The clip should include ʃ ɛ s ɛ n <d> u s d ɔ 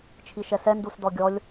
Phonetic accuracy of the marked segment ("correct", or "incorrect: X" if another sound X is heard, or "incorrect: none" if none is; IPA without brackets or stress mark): correct